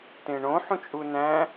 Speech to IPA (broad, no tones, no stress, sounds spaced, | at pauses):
t ẽ ɳ õ ħ ũ t͡ʃʼ u n æ̃